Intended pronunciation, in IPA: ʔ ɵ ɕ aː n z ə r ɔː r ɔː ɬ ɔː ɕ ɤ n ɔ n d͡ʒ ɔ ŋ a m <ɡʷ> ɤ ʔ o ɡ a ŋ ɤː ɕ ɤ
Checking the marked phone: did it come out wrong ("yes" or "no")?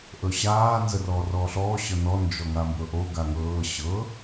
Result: yes